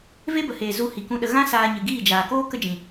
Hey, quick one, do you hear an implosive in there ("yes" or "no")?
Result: yes